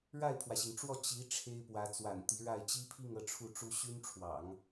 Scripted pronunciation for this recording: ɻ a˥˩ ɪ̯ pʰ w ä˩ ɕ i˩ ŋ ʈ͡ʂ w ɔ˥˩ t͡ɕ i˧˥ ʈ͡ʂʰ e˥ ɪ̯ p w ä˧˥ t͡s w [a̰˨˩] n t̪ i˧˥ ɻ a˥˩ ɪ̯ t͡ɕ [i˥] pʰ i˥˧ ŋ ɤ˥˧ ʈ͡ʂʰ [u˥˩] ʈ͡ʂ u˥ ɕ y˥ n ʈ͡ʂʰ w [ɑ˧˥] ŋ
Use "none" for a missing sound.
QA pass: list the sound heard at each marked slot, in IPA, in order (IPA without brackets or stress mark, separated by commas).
a̰˨˩, i˥, u˥˩, ɑ̰˨˩˦